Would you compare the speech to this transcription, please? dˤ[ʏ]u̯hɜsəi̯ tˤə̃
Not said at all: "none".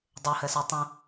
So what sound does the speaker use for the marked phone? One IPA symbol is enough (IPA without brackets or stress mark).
ə